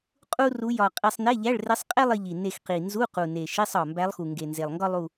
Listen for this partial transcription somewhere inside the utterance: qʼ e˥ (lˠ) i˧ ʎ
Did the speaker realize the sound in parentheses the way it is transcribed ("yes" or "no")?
yes